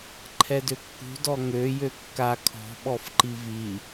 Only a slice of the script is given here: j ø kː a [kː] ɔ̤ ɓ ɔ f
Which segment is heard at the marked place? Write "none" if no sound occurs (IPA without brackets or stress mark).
kʰ